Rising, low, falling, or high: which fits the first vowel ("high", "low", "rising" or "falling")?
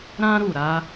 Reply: high